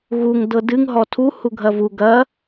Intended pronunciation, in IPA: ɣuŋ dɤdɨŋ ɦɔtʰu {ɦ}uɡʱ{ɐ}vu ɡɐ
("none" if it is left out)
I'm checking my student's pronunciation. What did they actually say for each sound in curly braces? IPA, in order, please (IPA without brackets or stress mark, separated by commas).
h, ɐ